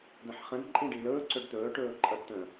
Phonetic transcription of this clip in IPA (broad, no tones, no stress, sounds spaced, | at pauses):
d ə̃ ħ χ ə̃ d ǃʼ ĩ ɖ i l ɵː ǀ ɵ ɖ t̪ ɵː ʈ ɵː ǃʼ ʌ ɖ t̪ ə̃